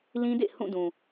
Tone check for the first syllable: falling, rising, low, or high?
high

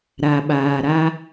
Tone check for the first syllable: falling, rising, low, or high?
low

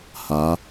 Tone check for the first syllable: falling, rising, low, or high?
rising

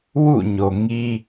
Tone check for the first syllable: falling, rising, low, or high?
falling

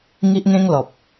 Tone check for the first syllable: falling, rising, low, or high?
high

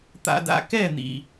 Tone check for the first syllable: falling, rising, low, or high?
low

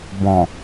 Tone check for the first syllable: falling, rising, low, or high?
low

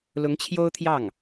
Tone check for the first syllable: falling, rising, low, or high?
rising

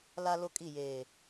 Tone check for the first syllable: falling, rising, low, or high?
high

